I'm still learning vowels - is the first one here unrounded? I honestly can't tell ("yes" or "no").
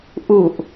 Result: no